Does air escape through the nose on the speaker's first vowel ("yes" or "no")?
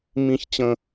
yes